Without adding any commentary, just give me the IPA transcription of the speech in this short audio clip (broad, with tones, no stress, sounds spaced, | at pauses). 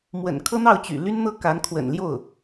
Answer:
m w ə̰˨˩ n kʰ ɤ˥ n̪ ɑ˥˩ ʊ̯ t͡ɕ y̰˨˩ l y˥ n n̪ ɤ˥ k a˧˥ n kʰ w ə̰˨˩ n l j o˥˩ ʊ̯